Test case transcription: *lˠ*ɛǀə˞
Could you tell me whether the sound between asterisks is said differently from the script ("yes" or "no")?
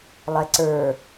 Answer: no